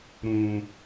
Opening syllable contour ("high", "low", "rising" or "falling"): low